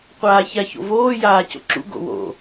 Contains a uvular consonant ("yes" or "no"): yes